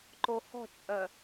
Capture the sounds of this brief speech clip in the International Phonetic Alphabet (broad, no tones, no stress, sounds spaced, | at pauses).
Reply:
ǃ o h ɔ̤ t͡ʃʼ œ